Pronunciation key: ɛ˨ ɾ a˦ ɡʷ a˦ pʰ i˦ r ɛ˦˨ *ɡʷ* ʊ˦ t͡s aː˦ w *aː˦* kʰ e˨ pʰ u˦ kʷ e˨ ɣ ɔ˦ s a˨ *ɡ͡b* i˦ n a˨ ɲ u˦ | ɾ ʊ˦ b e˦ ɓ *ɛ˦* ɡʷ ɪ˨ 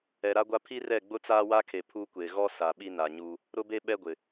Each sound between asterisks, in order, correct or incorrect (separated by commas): incorrect, incorrect, incorrect, correct